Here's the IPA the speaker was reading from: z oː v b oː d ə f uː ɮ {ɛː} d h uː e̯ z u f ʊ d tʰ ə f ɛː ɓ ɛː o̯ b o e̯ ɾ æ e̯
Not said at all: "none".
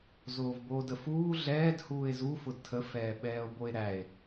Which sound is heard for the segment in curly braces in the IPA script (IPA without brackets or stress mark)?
ɛː